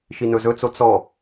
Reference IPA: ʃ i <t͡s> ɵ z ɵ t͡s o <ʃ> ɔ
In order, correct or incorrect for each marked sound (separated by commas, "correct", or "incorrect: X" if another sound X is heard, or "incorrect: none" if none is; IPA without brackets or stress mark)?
incorrect: n, incorrect: t͡s